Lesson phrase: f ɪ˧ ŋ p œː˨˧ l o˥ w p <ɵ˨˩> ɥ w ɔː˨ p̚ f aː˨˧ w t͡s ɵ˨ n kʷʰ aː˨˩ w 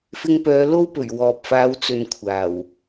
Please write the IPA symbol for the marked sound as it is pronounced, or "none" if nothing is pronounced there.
ɵ˨˩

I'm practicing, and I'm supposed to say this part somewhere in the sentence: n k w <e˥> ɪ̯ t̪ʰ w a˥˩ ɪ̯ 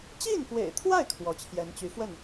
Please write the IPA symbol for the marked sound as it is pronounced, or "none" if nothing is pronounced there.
ḛ˨˩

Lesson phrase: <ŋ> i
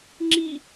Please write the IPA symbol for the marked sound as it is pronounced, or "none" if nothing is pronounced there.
ŋ͡ǁ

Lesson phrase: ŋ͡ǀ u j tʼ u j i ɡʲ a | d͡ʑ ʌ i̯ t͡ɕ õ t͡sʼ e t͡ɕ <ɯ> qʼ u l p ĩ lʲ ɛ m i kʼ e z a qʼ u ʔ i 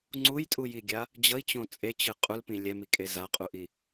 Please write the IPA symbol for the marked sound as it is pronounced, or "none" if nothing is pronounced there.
ɯ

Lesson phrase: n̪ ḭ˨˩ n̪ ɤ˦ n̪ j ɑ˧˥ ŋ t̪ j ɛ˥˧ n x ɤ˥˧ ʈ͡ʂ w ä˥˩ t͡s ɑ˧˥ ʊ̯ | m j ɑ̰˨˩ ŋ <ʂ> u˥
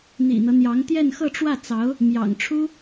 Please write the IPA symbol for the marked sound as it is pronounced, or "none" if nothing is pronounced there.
ʈ͡ʂʰ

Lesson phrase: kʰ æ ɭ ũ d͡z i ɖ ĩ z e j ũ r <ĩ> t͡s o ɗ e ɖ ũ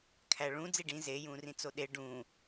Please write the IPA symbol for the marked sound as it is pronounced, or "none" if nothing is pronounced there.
ĩ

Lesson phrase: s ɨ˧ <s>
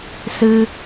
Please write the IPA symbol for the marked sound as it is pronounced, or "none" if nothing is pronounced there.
none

